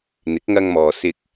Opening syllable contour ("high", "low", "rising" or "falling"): rising